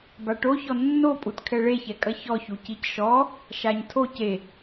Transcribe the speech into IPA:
b a ʈ o ç ɔ nː o pʼ u t kʰ ɛ ɭ e ç ɛ kʼ ɐ ç ɔ ç u c i c ʃ ɔ | ʃ a ɲ tʰ o c e

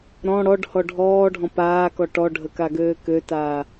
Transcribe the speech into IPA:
ɾ ɔ̃ ɽ ɔ ɖ h ɔ ɖʱ ɔː ɖʱ ɔ̃ p aː k ɔ ʈ ɔ ɖʱ ə k a ɡ øː k ø t aː

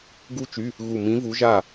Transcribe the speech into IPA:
ɡ u˥ t͡ʃ y˧˥˧ | ɣ u˧˩ m ĩ˧˥ v u˧˥ ʒ a˥˨

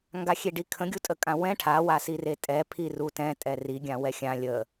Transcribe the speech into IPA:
ŋ ɡ a xʲ e ɖ i kʰ ə̃ ɡʲ u tʼ ə kʼ ã w ɛ̃ ʈʰ a w a s i r e tʼ ɛ pʰ i r u t ɛ̃ tʼ ɛ r i ɡʲ ã w ɛ xʲ ã lʲ ə

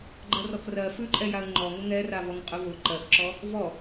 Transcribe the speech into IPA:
ɡ͡ǃ ɜ r ɔ k r ɜ f ʉ ǃʼ ɛ j a ə̯ ŋ͡ǃ ɔ ŋ ʊ ŋ ɛ r a v ɔ ŋ qʼ ʊ v ʊ ǃ ɜ x ǁ ɔ | v ɔ

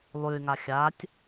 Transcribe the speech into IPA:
lˠ ʉ y̯ ŋ a xʲ a tʲ

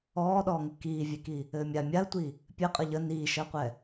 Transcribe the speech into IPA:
ɔː ɗ ɔː ŋ ɘ k iː vʲ e k i | ɘː mʲ a mʲ a ə̯ tʷ i | pʲ ɘ qʼ ə ʎ ə n iː ʃ əː qʷ ɛ

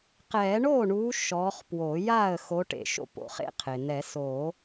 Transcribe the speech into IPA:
q ɛː˨˩˦ ɳ oː˥˩ ɳ uː˨˦ ʃ ɔː˨˦ χ p w o˨˩˦ j aː˥˩ ə̯ x o˨˦ ʈ ḛ˧˩ ʃ o̰˥˩ p o̰˨˦ χ ḛ˦˥ qʰ e˩ n̪ ɛ˨˩˦ s o˨˩˦

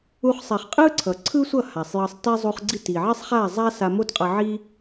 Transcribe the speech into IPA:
u˧ χ sˤ ɛ˨ χ qʼ ɯ˦ ǀʰ ʌ˨ ǀʰ ɯ˦ sʷ ʌ˦˨ h a˨ sˤ j ʌ˧ sˤ t ɛ˦ zˤ u˧ χ ɡ͡ǀ i˦˨ t i˨ ʕ i˦ sˤ χ a˦˨ zˤ a˦ s a˧ m o˦ t qʼ ʌ˧ ʕ i˦

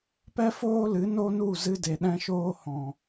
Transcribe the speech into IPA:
p ɛ˦ f oː˦ l ɨ˨˦ n o˦ n u˦˨ z ɨ˧ d e˨ ɗ ɛ̃˧ ʃ oː˧ h ɔ̃˨

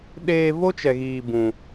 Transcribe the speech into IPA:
ɗ eː˧ v o˦ t͡ʃ ɛ˨ ɣ iː˨ b ũ˨

